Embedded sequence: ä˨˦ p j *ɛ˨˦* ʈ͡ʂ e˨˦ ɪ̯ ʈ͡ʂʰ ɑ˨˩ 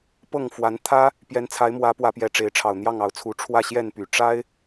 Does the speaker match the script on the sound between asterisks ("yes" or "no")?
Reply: yes